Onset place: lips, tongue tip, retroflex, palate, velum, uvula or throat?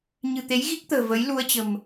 palate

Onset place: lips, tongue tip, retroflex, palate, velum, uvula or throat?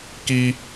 velum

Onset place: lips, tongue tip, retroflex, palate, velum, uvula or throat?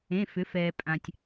lips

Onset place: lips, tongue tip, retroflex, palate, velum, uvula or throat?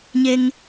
palate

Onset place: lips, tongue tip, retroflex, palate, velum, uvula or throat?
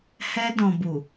throat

